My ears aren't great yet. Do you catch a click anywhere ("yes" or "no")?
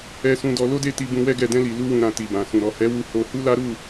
no